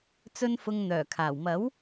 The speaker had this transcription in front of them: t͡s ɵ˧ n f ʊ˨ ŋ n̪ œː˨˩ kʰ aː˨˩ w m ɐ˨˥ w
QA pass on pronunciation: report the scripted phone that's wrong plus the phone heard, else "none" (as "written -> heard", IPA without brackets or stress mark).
none